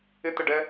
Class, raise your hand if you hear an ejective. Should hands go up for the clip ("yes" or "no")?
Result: no